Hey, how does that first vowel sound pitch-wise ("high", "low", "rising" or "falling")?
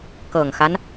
low